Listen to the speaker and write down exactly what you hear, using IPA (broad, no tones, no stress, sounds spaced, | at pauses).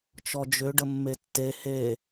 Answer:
t͡ʃ ɔ d͡ʒ ʏ ɖ ə mː e tː e h e